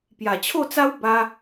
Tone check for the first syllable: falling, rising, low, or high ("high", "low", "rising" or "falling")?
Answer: low